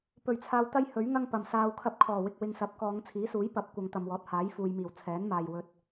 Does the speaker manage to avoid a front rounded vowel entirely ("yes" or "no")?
yes